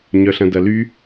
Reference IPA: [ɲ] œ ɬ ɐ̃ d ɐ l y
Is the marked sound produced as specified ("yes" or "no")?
yes